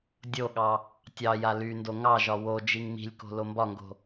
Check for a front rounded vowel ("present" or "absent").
present